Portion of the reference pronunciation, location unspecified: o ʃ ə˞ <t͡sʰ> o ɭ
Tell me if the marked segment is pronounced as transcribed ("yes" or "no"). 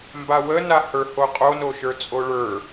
no